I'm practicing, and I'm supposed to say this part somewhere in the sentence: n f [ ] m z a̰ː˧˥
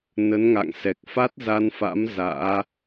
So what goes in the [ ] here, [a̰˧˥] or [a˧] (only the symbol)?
a̰˧˥